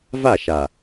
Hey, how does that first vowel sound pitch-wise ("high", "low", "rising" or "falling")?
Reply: falling